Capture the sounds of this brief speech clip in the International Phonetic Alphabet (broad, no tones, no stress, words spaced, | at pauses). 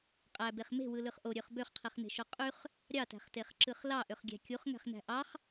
qʼæbeχ me̤wɯlɯχ ʔoɾʲøχ bøχqʰiχne̤ʃo qʼyχ | ɾʲɑtæ̤χteχǁɯχ lɑʔøχɡʲæ̤ kʲuχŋæ̤χnæ̤ ʔɑχ